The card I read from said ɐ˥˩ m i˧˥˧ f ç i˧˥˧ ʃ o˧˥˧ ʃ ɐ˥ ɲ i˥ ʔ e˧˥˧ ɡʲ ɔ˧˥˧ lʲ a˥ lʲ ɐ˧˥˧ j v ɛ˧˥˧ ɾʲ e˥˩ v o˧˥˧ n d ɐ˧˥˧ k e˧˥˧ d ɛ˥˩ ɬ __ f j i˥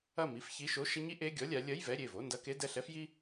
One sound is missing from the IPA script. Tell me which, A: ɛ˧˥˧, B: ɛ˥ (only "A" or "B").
B